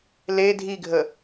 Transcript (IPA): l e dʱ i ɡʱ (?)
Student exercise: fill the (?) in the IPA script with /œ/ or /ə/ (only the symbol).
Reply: ə